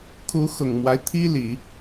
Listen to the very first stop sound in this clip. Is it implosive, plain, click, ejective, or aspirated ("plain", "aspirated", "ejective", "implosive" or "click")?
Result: aspirated